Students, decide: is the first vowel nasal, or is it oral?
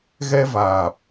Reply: oral